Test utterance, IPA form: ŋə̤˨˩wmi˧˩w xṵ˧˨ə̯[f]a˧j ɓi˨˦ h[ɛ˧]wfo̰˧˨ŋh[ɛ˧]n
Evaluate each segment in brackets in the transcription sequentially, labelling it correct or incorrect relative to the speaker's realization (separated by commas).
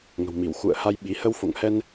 incorrect, incorrect, correct